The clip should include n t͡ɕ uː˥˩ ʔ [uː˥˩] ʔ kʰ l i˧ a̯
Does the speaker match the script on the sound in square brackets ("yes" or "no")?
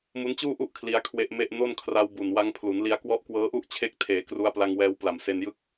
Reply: no